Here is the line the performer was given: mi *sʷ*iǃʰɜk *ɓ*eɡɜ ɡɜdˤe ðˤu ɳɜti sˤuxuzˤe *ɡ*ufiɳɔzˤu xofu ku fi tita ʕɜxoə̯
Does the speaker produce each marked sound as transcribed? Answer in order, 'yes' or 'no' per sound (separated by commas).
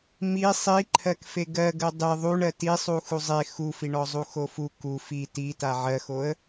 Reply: no, no, no